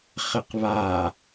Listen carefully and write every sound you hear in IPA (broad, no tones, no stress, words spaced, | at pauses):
χɘqβa